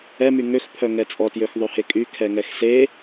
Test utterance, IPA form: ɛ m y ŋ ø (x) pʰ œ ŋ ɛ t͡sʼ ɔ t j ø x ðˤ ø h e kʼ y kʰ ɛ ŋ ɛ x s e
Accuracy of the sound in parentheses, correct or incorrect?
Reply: correct